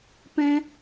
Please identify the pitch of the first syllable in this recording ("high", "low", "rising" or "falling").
high